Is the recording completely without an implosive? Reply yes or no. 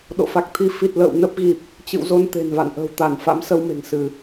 no